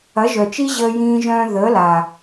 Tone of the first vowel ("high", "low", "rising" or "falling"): rising